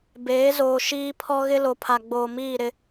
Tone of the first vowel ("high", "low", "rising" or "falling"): rising